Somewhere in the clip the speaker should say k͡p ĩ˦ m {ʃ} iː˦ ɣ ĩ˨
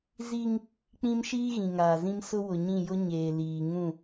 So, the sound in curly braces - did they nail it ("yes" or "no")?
yes